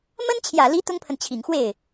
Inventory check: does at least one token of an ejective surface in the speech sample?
no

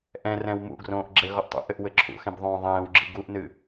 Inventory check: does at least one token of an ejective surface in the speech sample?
no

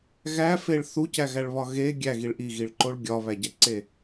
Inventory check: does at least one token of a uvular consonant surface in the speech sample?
no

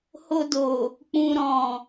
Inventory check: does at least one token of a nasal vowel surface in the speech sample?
yes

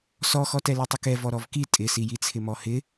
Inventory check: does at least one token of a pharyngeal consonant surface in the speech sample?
no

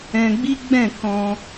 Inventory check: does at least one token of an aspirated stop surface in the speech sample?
no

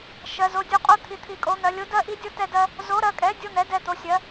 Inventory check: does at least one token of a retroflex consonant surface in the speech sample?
no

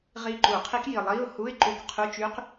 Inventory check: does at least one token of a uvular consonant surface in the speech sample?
yes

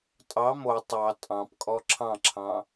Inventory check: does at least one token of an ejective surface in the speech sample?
yes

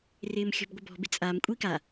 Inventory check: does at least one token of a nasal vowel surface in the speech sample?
no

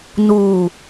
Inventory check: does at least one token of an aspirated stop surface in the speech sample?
no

